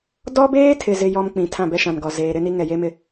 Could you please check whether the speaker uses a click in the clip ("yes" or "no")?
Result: no